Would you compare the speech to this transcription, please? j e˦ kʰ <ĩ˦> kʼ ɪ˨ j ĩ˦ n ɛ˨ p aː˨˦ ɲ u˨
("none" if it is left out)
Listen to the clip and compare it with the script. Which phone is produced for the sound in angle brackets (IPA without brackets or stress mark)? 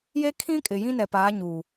ĩ˦